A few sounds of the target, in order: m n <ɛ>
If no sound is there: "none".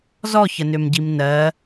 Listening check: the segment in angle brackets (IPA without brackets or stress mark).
ɜ